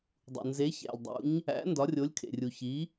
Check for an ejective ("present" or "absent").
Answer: absent